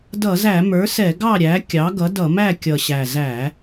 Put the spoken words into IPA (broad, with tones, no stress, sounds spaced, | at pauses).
d ʌ˧˩˧ z æ˧˩˧ m ə˞˩˥ s ɛ˧˩˧ ɡ ɑ˥˩ ɾʲ æ˩˥ kʲ ɑ˩˥ ɡ ʌ˩˥ d ʌ˧˩˧ m æ˥˩ kʲ ʌ˨˩ ɕ æ˨˩ z æ˧˩˧